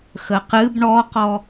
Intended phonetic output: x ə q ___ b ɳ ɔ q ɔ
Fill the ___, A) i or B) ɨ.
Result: B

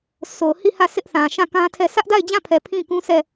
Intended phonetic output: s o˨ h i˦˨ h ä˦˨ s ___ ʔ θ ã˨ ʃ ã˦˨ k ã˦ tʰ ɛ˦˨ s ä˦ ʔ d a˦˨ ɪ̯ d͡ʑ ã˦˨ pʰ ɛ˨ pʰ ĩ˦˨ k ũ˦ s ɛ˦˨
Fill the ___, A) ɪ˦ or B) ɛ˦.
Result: A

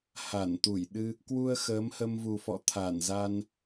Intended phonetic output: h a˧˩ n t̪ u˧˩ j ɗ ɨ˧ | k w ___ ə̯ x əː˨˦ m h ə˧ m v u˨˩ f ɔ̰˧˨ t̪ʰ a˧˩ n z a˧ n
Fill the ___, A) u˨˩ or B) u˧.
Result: B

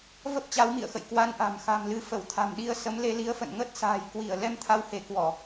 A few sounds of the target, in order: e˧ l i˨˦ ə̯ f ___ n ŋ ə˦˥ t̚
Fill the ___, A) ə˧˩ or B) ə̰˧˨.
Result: B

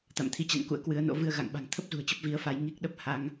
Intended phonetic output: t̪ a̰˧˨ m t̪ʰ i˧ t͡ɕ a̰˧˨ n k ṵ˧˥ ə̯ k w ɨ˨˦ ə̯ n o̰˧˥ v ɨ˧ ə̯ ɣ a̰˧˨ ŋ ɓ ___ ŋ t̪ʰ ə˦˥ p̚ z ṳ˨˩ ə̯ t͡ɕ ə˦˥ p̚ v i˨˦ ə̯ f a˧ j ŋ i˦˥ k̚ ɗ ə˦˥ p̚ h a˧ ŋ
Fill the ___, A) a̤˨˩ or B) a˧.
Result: A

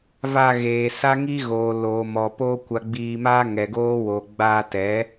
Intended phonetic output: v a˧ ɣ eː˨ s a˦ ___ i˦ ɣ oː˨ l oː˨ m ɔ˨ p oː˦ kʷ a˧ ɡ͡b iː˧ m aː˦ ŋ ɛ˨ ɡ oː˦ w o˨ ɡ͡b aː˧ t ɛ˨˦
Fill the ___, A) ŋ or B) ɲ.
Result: A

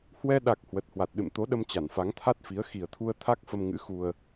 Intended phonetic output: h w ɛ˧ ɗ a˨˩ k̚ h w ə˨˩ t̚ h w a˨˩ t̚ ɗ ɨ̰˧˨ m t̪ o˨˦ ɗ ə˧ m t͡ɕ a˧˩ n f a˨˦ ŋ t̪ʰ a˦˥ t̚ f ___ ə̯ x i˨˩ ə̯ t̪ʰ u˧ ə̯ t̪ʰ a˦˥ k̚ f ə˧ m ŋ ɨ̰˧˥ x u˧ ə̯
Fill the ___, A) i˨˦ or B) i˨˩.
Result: A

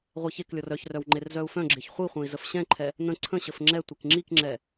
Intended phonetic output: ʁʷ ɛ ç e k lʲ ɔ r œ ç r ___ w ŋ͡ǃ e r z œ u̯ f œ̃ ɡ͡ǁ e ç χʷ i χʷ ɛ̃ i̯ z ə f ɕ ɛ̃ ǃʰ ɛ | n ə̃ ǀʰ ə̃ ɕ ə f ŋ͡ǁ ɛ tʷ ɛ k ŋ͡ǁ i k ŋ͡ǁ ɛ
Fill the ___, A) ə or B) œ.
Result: B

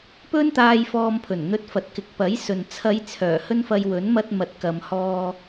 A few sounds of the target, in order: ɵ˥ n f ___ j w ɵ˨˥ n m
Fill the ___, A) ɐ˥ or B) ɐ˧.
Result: B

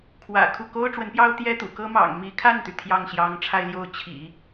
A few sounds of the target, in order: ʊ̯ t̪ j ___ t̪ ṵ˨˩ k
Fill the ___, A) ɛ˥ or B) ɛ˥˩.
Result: A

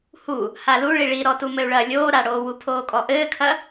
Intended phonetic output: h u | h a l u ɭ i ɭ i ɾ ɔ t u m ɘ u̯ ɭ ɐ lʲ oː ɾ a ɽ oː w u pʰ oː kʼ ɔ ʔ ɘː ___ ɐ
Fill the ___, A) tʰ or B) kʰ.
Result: B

